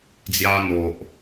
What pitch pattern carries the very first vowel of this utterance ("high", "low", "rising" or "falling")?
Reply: high